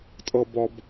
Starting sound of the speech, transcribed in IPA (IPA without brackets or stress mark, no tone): tʼ